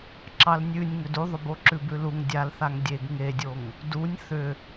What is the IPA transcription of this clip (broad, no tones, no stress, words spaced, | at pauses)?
ǁɑlnʲʉnʲ ŋʏduðˤʏ boǁʉbʉluŋ dʲalθaŋ dʲeɡ ŋedʲoŋ | dunʲ θʏ